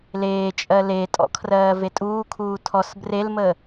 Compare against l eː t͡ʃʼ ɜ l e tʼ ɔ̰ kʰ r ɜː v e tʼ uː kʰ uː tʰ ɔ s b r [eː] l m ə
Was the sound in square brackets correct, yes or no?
no